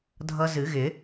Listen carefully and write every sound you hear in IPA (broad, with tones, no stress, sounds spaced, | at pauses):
dʱ ʌ˦˥ z ɨ˨˩˦ ɣ ɪ˨˩˦